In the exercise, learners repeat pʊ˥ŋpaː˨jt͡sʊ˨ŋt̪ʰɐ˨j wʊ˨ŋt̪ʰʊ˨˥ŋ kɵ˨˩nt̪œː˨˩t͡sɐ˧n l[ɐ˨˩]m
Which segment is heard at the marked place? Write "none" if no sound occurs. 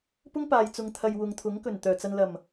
ɐ˨˩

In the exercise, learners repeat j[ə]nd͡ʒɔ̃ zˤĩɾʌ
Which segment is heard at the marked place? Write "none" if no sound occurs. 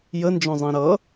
ə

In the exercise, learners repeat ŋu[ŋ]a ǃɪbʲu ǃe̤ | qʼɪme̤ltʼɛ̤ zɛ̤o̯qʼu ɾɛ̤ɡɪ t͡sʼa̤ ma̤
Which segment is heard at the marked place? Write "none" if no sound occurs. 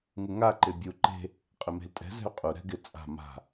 ŋ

